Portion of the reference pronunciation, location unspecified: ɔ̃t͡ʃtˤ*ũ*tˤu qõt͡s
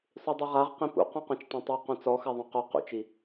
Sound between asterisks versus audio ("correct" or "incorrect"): incorrect